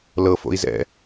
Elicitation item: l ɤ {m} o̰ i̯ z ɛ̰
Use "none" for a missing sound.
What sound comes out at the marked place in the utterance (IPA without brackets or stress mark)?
f